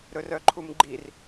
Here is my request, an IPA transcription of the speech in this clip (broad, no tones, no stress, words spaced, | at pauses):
ɾɵrœǃʰumɡ͡ǃir